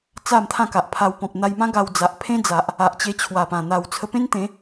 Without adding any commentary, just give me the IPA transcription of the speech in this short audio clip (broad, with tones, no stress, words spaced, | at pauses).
t͡sa˥˧mt̪ʰã˥˧ka˨ʔpʰa˧w pɔ̃˨p̚n̪a˧jmã˦ ɡa˧wd͡za˨ʔpʰẽ˦d͡za˨ʔ | a˨ʔt͡ɕe˧t͡ɕʰwa˨˩pã˨˩ n̪a˨˩w t͡sʰə˧pẽ˦nt̪ẽ˨˦